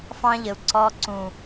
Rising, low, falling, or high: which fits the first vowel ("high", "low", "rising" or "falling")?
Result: high